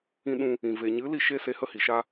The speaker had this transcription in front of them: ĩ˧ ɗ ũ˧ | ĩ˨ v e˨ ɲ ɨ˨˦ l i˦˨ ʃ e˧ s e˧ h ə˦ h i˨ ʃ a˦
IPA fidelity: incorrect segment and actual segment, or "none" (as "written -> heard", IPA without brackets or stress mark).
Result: none